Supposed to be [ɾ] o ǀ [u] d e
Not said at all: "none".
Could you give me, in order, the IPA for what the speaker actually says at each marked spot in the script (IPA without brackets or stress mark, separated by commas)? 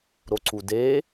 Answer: ɾ, u